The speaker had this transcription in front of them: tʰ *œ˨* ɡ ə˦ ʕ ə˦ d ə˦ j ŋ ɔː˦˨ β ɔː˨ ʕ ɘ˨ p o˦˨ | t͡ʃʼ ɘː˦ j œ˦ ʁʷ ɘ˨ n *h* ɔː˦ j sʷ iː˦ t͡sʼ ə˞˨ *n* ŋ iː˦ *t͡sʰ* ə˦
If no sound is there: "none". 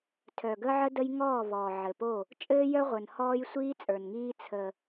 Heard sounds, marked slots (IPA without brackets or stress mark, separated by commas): œ˨, h, n, t͡sʰ